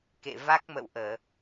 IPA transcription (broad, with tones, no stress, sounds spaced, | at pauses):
k ḛ˧˨ v a˦˥ k̚ m ə̰˧˨ w ʔ əː˧˩˨